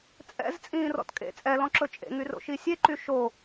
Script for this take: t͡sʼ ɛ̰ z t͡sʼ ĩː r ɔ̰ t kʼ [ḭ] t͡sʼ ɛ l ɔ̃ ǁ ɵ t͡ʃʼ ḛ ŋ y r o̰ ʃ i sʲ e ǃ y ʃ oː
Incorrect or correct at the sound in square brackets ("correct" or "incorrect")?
incorrect